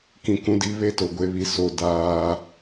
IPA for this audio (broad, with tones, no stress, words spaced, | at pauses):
kĩ˨kũ˨˦di˨˦ βe˦to˨ɡʷe˨˦βi˨ so˨ daː˦